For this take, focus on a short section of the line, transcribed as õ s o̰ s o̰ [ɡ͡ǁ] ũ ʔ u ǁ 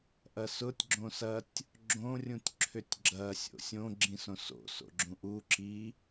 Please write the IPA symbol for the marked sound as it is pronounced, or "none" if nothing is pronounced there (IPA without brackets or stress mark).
ɡ͡ǁ